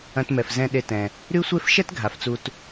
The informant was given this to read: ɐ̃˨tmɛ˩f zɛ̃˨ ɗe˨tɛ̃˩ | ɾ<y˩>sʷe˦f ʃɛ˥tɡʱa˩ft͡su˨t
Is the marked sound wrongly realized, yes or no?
yes